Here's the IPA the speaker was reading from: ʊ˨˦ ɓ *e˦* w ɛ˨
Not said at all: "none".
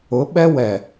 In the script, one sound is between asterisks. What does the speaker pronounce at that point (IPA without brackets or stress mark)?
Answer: ɛ˦